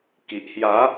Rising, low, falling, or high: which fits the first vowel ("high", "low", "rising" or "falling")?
low